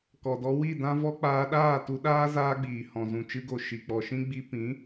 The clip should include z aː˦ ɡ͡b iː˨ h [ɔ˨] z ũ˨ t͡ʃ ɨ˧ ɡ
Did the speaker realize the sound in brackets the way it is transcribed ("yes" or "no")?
no